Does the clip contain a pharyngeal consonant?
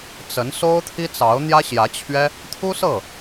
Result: no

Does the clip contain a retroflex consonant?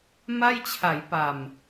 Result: no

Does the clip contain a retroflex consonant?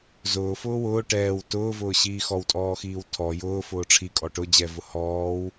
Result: yes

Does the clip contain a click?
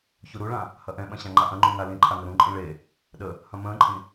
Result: yes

